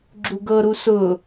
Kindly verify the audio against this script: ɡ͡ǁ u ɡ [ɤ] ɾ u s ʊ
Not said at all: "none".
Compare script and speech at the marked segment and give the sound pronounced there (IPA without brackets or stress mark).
ɤ